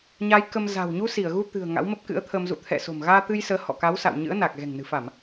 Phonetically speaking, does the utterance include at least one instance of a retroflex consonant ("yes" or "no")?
no